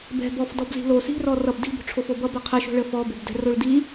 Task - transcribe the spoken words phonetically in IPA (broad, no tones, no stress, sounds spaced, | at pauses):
b ɛ̤ b ɔ f d ɔ b z i̤ l o s i̤ r ɔ r ʌ b d i̤ b o̤ ʈ͡ʂʰ o f o b ʌ b ʌ qʰ ə ʃ o̤ ɭ ə f ɔ b o b d ɛ̤ r o ɭ d i